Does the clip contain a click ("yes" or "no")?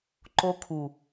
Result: yes